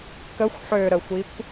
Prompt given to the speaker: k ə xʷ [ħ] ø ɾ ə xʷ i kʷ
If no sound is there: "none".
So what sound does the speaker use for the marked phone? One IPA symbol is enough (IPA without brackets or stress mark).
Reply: ħ